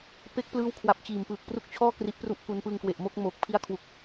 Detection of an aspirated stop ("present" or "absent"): present